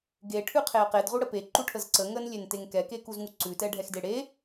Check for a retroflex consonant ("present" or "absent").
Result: present